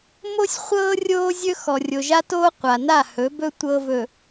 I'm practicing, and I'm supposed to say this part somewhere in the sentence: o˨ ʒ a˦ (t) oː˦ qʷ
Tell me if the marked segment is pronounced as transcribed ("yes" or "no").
yes